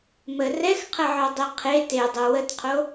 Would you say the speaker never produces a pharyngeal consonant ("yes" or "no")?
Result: no